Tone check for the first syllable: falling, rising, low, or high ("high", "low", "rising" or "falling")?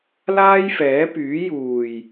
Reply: high